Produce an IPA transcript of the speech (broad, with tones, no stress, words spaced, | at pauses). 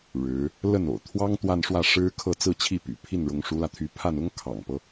ɻɻ̩˧˥ | lə˥˩no̰˨˩ʊ̯ t̪ʰwɑ˥ŋ t̪wa˥˧nʂwä˥˩ ʂɻ̩˥ kʰɤ˥˧ t͡sɹ̩˥˧t͡ɕʰi˥˩ py̰˨˩ pʰi˥˩nɻʊ˧˥ŋʂu˧˥lä˧ t̪ʰy˧˥ pʰa˥˩n ʊ˥ŋkʰɑ̰˨˩ŋpɤ˦